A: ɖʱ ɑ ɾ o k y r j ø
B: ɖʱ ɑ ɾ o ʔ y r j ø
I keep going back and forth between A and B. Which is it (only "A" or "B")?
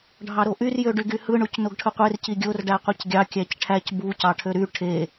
B